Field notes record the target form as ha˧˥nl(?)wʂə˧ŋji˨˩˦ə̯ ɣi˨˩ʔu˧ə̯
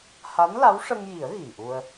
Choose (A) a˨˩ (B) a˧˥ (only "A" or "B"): B